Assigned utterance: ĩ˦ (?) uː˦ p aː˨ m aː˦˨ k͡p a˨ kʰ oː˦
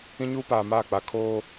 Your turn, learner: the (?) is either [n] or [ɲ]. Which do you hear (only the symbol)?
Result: ɲ